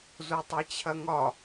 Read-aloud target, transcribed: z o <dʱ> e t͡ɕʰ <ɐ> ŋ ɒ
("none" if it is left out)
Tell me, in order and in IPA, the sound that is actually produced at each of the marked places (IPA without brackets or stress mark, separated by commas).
tˤ, ɐ